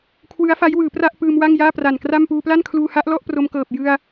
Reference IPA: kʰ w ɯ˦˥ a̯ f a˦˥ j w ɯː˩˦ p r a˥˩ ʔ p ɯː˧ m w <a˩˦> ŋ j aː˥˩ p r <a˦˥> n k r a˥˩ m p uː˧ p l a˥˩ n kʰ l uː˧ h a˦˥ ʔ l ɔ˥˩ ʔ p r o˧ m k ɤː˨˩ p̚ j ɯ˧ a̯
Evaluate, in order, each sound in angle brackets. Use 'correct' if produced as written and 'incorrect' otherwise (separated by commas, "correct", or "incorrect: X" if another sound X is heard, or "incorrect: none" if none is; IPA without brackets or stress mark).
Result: incorrect: a˥˩, incorrect: a˨˩